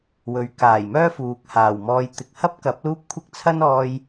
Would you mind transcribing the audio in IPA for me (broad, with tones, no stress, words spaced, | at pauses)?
wɵ˨˥ɥ kaː˨˩jmœː˥ fuː˨k̚haː˨˩w mɔː˧j t̪ɪ˨k̚hɐ˥p̚kɐ˨˥p̚ luː˥p̚kʷʰɪ˥k̚ t͡sʰɐ˥nɔː˧j